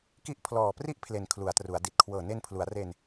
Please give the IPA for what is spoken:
ki˦˥ʔpʰlɔː˨˩pri˥˩ʔpʰle˩˦n kʰlu˩˦a̯tru˩˦a̯di˨˩t̚ kʰwɤː˨˩ne˧npʰlu˩˦a̯re˧n

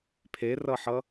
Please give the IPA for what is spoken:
pʰerʌħʌ

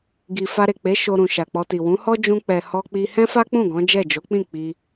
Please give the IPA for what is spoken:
ɡi˨ fa˧ɾe˨k͡pe˨˦ ʃo˧ɾũ˨ ʃa˨k͡pɔ˧ti˨ wũ˨˦hɔ˦ d͡ʒũ˦k͡pɛ˧ hɔ˦k͡pi˦ hɛ̃˦fa˦k͡pũ˦˨ ɡɔ̃˨˦d͡ʒɛ˦˨ d͡ʒo˨˦k͡pĩ˦˨ k͡pi˧

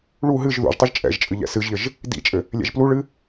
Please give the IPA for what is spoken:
ɭu ɦɨʒ ðṵʒtˤɨʒ t͡ʃʼɛ̰ʒt͡ʃʼɨ ʎɛ̰sɨʒʎɘʒ | dḭt͡ʃʼɘ | lʲɛ̰ʒpluɭɨ

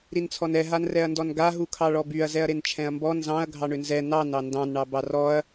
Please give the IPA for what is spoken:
ɾint͡sʰɔnɛ ɦanrɛɐ̯ndɔnɡa ɦukʰɑɭɔbyɐ̯ zɛɐ̯ɾent͡ʃʰɛ̃ɐ̯mbɔ nzɑ̃ɐ̯ ɡʱɑɳʏnzɛ nɑn ɑndɑ̃n ɳɑbɑrɔɐ̯

